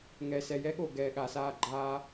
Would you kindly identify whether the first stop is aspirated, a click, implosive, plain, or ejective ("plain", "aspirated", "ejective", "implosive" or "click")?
implosive